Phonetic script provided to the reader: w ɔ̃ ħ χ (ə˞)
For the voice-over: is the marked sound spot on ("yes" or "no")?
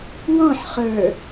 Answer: yes